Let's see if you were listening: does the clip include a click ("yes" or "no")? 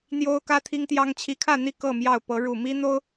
no